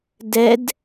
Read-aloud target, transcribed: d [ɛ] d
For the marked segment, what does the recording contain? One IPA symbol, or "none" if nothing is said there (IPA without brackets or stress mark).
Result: ɛ